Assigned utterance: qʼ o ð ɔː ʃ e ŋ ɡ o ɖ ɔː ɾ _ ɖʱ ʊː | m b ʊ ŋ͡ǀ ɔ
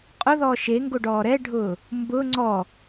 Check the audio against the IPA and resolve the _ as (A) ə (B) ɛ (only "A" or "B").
B